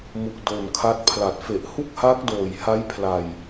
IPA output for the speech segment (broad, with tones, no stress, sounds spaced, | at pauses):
m u˨˩ k̚ d o˨˩ n kʰ a˦˥ t̚ pʰ l a˨˩ t̚ f e˨˩ ʔ h u˥˩ k̚ h aː˦˥ k̚ d oː˨˩ j h a˦˥ j pʰ l a˨˩ j